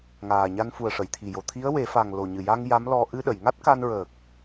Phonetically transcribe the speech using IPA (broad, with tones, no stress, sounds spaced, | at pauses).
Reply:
ŋ aː˨˩ ɲ a˧ n f u˨˩ ə̯ ʂ ə˨˩˨ j t̪ʰ i˨˩ j o˨˩ t̪ʰ i˧˥ ə̯ w e˨˩˦ f a˨˩ ŋ l o˨˩ ɲ ɨ˨˩ j a˧ ŋ j a˧˥ m l ɔ˧ ʔ ɨ˧ ɗ ə˨˩˨ j ŋ a˦˥ t̚ k a˧ n ɹ əː˨˩ k̚